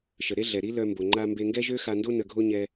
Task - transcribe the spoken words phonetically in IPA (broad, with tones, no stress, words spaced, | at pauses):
ʃə˩ɾe˥ɮɛ˩ ɾi˥lœ˧mbo˩ ŋ͡ǃa˧mbe˧ŋɡɛ˥ʒø˥ xa˧ndo˥ nə˧ɡʱo˥ɲɛ˧